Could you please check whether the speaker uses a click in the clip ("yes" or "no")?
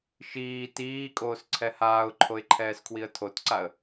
yes